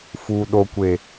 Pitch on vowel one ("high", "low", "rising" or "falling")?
low